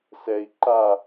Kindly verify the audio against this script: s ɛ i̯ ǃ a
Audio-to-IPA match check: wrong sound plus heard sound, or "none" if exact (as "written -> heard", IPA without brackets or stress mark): none